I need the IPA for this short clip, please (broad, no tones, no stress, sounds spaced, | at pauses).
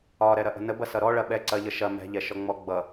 ɒ ɾ ɛ ɾ ɐ ʔ ə̤ n ə b ɐ s ʌ ɾ ɔ ɭ ɐ ɓ ɛ ǀ ɐ ʎ ə ʃ ɐ m ɛ̤ ʎ ɛ ʃ ɔ ŋ͡m ɔ ɡ͡b ʌ